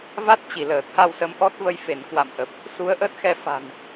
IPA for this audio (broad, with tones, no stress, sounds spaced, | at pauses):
v a˦˥ t̚ t͡ɕ i˧˩ l əː˧˩ t̪ʰ a˧ w s ə˨˦ m ʔ ɔ˦˥ t̚ v ə˧ j f e˧˩ n k w a̰˧˨ m ʔ ə˨˩ p̚ | s u˨˦ ə̯ ʔ əː˦˥ t̚ x ɛ˧ f a̤˨˩ n